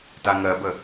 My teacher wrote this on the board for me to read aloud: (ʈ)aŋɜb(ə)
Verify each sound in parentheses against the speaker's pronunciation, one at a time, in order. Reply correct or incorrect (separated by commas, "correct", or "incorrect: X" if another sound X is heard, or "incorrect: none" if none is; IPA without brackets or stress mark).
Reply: incorrect: t, correct